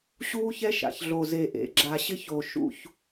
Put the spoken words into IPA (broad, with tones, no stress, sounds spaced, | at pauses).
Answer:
ɕ uː˦ ç ɛ˦ ʃ a̰˨ ç ɮ o˨ z e˨ ʔ ḛ˨ ɡ͡ǁ a˨ ɕ ɪ˦ ç o˨ ʃ ṵ˦˨ ç